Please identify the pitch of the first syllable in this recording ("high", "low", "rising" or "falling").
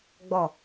falling